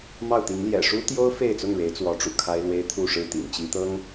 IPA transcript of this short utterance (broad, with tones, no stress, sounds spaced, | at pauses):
m ɑ˥˨ ʊ̯ t̪ i˨˦ ŋ l j ɛ̰˨˩ ʂ u˦ t̪ j o˦ ʊ̯ f e˥˨ ɪ̯ t͡s ʊ˥˨ ŋ ɻ e˨˦ ɪ̯ t͡s w ɔ˨˦ ʈ͡ʂ ṵ˨˩ kʰ a˦ ɪ̯ l w e˦ ɪ̯ t̪ʰ u˥˨ ʂ ɻ̩˥˨ t̪ ḭ˨˩ ŋ t͡ɕ i˨˦ t̪ ɤ˦ ŋ